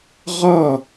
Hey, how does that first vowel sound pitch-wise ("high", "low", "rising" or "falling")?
falling